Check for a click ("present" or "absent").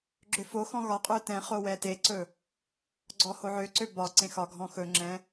present